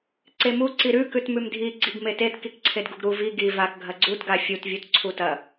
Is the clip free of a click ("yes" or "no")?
no